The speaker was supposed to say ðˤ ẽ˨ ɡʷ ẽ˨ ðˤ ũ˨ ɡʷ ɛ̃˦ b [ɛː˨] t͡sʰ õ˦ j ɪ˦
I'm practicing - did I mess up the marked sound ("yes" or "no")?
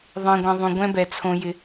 yes